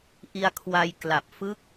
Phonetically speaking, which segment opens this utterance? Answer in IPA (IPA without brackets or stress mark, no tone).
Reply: ʔ